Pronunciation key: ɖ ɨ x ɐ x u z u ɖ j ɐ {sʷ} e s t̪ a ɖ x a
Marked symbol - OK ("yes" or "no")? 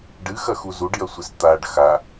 yes